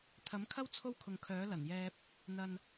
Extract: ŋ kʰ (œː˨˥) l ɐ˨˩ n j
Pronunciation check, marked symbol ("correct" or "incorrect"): correct